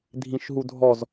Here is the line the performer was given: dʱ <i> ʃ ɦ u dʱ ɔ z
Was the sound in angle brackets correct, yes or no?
no